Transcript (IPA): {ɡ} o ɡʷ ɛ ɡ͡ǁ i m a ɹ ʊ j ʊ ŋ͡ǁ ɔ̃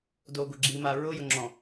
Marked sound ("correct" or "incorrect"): incorrect